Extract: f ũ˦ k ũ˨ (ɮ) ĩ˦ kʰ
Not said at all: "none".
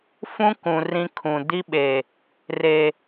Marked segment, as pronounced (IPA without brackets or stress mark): r